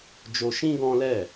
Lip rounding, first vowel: rounded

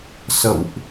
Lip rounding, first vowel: unrounded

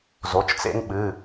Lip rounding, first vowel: rounded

